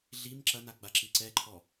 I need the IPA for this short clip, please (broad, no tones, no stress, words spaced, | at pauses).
ɮim ǁɐna ɡ͡baǁiǀɛǃʰɔ